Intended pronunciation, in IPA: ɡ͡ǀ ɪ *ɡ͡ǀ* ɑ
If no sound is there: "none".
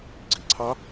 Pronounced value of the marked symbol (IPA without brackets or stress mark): ǀʰ